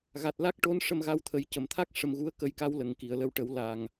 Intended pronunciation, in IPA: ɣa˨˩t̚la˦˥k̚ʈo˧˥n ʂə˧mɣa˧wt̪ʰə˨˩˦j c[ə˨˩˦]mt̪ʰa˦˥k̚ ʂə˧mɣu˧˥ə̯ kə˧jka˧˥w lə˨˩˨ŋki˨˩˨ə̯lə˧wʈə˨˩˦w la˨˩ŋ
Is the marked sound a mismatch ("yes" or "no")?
yes